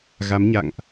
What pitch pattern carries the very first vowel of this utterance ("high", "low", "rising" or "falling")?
rising